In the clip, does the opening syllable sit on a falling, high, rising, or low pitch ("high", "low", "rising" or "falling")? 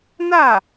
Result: falling